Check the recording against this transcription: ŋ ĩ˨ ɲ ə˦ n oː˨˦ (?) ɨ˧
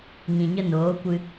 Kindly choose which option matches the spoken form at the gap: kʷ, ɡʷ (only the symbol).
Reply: kʷ